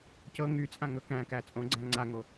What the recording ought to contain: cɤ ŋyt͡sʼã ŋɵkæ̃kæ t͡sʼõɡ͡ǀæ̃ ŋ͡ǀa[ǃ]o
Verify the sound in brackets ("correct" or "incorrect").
incorrect